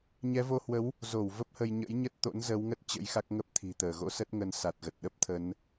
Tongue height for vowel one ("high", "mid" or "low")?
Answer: mid